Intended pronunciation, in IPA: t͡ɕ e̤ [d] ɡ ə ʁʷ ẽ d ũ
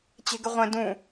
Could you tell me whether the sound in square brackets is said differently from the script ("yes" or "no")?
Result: yes